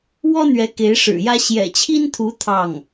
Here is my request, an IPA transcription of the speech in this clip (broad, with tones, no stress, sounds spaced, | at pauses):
w ɔ˥ n̪ ɥ ɛ˧˥ k e˧˥ ɪ̯ ʂ ɻ̩˨˩ j ä˥ ɕ j ɛ̰˨˩ t͡ɕʰ i˥ n t̪ʰ u˧˥ t̪ʰ ɑ˥˩ ŋ